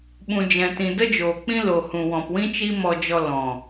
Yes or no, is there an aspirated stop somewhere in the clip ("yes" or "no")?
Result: no